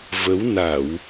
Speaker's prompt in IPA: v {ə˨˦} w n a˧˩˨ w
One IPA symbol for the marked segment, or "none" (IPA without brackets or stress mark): ə˨˦